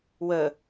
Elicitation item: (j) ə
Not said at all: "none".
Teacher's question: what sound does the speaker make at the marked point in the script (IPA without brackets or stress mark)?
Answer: w